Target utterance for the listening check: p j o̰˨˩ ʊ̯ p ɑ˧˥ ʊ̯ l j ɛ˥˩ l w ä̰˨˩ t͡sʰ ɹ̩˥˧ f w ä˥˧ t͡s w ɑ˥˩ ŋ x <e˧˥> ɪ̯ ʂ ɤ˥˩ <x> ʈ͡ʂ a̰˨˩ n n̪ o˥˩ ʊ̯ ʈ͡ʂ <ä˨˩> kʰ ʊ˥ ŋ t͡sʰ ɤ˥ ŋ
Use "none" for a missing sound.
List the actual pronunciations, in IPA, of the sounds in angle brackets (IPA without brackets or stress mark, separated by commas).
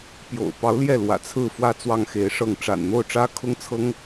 e˧˥, ŋ, ä˥